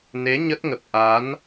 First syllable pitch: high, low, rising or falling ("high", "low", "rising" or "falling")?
rising